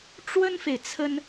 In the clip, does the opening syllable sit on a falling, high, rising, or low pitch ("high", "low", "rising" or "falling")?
high